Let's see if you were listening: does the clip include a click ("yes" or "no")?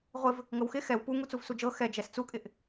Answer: no